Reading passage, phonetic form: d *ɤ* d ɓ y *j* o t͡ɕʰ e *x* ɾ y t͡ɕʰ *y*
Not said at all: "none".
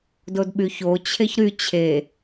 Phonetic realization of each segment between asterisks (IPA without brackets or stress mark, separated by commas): o, ç, ç, e